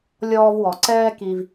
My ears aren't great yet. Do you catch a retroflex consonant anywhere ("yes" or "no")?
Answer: no